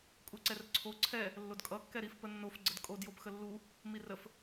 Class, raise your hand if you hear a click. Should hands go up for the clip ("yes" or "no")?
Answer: yes